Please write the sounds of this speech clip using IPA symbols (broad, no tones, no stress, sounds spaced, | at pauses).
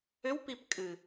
ʏ w p i p kʼ ɨ